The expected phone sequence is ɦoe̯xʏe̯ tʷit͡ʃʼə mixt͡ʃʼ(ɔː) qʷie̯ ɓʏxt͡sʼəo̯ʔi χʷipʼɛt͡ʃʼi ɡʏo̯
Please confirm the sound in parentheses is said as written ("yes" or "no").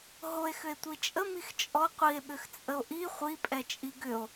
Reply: no